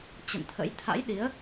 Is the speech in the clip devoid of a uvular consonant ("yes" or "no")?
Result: yes